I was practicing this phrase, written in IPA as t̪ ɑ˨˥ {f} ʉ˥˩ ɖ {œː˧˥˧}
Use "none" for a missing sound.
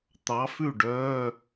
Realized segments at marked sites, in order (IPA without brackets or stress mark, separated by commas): f, œː˧˥˧